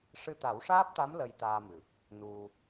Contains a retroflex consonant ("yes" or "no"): yes